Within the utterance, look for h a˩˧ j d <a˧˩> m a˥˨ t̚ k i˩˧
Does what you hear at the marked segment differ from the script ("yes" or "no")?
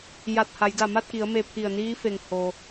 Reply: no